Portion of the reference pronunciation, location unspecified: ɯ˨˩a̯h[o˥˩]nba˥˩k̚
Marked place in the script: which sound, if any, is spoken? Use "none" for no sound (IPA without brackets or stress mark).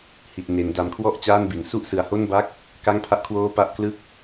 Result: o˥˩